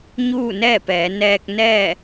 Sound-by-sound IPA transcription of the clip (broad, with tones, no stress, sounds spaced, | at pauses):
ɲ uː˥˨ n ɛː˥˨ p ɛː˩˧ n ɛː˧ k̚ n ɛː˥˨